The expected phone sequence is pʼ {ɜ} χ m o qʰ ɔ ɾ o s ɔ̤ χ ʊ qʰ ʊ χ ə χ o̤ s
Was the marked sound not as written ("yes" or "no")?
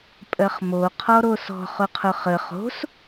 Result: no